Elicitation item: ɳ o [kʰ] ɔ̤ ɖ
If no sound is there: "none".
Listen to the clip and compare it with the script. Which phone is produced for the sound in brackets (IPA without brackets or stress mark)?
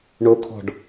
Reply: kʰ